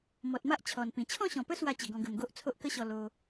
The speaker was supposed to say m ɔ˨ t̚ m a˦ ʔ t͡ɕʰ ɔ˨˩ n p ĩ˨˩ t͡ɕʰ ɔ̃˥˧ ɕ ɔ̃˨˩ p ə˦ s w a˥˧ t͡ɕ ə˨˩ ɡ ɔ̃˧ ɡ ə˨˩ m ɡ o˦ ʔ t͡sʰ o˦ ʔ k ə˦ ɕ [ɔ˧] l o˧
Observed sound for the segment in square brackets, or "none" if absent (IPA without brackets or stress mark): ɔ˧